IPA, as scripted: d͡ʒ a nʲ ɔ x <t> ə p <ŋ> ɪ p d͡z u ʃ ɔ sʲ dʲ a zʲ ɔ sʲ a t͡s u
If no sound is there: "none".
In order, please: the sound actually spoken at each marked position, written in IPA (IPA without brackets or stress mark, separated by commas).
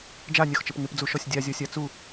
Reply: t͡ʃ, ŋ